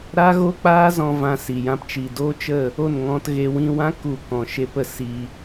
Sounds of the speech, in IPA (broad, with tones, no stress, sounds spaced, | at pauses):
ɾ a˦ ɣ o˦ k͡p aː˦ z ɔ̃˧ v ã˧ s i˨ j ã˦ p t͡ʃ i˨ d oː˦ t͡ʃ ə˦˨ | o˦˨ n ŋ ɔ̃˧ t ɣ e˧ w ĩ˧ w ã˦ k u˦˨ k ɔ̃˨ ʃ e˦ p ə˧ s i˧